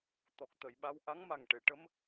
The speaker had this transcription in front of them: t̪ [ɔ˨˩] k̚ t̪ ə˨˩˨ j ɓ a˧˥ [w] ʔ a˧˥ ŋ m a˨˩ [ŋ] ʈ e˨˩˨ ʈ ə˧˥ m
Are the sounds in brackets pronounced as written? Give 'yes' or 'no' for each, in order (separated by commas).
yes, yes, yes